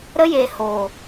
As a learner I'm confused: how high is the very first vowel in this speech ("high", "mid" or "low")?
mid